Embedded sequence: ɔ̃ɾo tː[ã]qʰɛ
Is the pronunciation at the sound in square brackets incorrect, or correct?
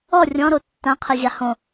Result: correct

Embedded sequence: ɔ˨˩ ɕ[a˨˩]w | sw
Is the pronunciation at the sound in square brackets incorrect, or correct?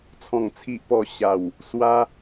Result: correct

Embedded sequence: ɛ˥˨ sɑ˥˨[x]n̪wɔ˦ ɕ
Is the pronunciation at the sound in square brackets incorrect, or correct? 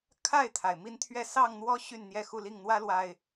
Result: incorrect: ŋ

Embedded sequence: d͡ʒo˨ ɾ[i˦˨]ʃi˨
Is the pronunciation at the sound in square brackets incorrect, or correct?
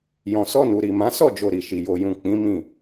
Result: incorrect: i˨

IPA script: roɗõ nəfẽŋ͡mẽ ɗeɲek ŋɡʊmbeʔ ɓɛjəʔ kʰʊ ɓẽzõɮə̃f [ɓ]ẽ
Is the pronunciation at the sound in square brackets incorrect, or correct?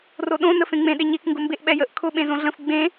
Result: incorrect: ɡ͡b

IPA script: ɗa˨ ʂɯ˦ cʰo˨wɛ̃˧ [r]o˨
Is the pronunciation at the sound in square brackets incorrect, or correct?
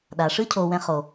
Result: incorrect: χ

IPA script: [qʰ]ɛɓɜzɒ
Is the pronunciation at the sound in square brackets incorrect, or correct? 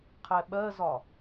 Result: correct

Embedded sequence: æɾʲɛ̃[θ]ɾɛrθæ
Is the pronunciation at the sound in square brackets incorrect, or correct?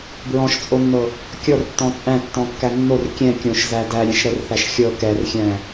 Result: incorrect: ʃ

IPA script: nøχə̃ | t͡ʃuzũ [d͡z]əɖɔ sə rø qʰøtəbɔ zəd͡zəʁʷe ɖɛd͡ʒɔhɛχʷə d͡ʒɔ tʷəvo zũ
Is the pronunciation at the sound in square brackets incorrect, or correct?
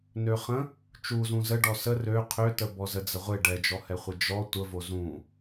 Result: incorrect: z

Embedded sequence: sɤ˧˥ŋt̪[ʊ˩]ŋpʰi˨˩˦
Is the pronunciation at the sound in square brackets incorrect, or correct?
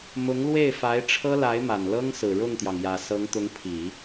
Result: incorrect: ʊ˧˥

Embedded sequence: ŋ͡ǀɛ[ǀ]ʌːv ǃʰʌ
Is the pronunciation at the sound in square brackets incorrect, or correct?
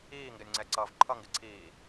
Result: correct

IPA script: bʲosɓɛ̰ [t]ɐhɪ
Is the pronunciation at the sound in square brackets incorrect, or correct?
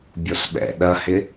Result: incorrect: ɗ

